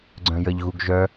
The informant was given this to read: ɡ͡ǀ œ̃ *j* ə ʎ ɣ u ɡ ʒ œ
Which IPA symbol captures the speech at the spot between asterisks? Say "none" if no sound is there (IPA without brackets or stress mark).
j